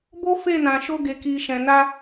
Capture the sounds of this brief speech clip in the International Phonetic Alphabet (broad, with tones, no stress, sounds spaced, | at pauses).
b o˦ f e˦˨ n ã˨ ʃ o˧ ɡ e˨ k i˨ ʃ ɛ̃˨ n a˧